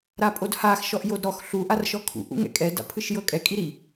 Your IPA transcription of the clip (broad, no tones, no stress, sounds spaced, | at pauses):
ɾ a pʼ o d h a x ʃ ɔ ʔ j o d ɾ ɔ x ɬ u ʔ a r ʃ ɔ kʰ ṵ ʔ ṵ ŋ ɛ̰ kʼ ɛ d a̰ pʰ ɯ ʃ j ɤ kʼ ɛ kʼ i ɾ i